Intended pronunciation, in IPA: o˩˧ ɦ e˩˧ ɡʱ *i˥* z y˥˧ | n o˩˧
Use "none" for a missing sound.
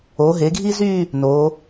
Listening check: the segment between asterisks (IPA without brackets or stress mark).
i˥